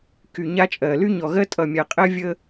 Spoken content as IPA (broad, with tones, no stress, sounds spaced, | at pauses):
k y˨ ɲ a˦ t͡ʃʼ ɜ˨ l y˦ ɲ ɔ˨ ɣ ɜ˦ tʼ ʌ˨ mʲ a˨ qʼ ɜ˦ vʲ ə˦